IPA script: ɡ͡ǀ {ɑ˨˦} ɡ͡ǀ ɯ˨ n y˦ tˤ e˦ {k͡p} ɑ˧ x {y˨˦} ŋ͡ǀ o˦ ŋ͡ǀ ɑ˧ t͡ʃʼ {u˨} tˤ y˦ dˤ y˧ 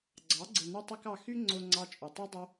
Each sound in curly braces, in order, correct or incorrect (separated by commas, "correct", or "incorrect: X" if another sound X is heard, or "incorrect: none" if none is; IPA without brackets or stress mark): correct, incorrect: k, incorrect: y˦, correct